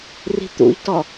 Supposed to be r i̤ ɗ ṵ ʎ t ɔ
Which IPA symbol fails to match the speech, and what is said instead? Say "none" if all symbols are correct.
ɗ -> t̪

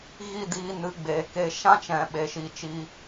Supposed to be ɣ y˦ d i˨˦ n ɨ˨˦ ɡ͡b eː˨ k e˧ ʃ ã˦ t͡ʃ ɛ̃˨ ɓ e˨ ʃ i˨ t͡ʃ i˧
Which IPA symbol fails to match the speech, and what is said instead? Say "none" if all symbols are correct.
y˦ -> i˦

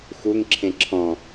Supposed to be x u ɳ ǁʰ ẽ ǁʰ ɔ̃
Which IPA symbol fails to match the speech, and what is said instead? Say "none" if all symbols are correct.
ɳ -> ŋ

